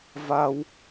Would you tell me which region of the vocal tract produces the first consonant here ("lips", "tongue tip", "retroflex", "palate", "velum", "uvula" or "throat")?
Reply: lips